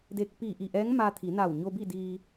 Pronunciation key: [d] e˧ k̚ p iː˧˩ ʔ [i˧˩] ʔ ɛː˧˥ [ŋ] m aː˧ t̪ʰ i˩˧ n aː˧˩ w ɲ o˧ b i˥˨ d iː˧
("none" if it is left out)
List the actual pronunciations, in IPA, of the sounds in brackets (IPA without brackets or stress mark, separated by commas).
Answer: d, i˧˩, ŋ